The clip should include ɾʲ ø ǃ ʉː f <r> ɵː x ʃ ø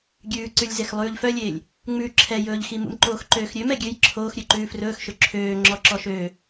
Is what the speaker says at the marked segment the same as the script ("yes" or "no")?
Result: yes